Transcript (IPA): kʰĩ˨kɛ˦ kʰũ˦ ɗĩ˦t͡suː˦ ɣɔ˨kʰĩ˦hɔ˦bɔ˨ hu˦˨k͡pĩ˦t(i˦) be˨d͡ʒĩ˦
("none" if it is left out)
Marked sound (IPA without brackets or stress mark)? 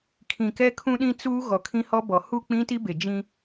i˦